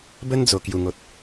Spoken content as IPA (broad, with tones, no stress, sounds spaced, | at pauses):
b ə˦ n d͡z o˨˩ k j u˨˩ ŋ o˨ t̚